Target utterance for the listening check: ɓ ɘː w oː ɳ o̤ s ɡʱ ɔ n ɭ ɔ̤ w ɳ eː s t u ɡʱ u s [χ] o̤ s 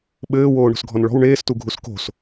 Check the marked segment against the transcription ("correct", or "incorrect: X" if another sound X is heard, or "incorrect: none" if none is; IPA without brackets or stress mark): incorrect: k